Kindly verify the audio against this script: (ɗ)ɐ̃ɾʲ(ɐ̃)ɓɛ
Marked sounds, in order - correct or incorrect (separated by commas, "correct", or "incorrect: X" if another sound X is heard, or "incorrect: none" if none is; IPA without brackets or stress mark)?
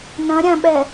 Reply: incorrect: n, incorrect: ã